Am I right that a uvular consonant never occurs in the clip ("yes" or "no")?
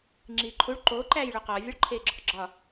no